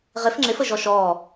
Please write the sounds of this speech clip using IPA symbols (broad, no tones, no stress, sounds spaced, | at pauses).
ʁ ɪ f ŋ͡ǁ ɪ f ə ʒ ɔ ʃ ɔː